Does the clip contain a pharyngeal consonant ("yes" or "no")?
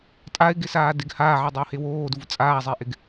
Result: yes